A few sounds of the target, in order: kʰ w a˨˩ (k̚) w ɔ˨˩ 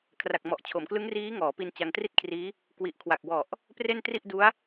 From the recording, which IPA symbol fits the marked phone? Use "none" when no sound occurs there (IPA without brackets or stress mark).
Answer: k̚